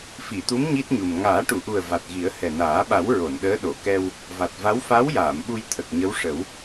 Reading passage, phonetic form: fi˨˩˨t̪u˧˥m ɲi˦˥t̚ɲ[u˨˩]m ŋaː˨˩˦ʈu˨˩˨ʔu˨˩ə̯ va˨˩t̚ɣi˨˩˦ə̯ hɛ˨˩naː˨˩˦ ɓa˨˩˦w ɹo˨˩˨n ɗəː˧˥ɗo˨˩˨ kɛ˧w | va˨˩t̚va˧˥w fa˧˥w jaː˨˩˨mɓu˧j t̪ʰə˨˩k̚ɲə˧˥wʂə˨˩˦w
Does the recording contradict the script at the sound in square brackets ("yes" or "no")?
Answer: no